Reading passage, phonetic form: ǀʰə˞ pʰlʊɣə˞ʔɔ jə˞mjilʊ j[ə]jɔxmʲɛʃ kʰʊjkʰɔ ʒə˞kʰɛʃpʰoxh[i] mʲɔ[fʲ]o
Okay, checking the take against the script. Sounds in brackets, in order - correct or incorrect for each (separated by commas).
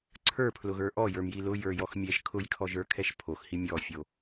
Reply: incorrect, correct, correct